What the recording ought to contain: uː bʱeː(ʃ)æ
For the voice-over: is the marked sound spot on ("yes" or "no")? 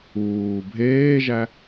no